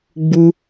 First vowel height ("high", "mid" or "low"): high